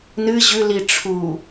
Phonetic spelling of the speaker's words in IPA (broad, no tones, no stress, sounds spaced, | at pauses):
n ɨ ʑ ʉ l i ʈ͡ʂʰ u